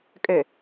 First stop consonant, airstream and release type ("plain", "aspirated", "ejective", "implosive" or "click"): ejective